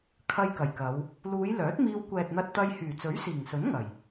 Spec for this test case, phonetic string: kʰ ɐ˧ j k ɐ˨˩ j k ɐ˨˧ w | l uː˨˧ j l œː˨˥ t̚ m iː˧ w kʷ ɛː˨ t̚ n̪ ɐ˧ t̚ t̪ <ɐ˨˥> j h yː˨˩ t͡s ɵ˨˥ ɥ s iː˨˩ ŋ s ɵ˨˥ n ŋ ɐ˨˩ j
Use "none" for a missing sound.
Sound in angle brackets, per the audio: ɐ˧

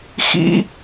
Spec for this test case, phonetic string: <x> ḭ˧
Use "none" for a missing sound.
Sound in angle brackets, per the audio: x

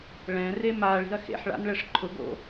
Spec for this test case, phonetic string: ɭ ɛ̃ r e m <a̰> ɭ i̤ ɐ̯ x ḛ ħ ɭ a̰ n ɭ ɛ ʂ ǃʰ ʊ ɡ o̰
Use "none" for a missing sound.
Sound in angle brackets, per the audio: a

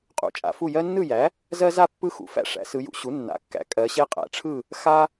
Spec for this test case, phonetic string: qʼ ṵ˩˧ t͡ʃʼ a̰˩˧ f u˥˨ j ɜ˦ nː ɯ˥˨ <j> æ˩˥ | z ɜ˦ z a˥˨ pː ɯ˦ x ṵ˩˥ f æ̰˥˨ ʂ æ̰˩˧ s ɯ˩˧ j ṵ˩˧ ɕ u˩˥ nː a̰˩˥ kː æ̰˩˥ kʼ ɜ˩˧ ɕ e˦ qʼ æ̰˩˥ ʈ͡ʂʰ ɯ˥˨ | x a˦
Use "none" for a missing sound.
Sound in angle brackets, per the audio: j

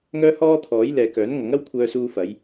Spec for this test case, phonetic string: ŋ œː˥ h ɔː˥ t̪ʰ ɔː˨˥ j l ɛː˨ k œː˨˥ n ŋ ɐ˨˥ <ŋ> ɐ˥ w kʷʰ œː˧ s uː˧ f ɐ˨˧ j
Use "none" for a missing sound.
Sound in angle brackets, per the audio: ŋ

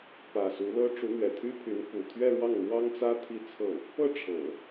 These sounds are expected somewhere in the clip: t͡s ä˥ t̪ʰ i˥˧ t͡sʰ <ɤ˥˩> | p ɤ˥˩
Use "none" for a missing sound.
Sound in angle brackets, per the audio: ɤ˥˩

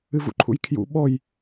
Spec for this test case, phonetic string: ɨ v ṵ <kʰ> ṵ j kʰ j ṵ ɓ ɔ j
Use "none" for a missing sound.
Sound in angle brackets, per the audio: ǃʰ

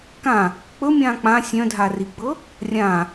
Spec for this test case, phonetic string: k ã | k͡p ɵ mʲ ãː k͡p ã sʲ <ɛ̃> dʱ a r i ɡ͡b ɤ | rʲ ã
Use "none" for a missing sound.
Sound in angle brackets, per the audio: œ̃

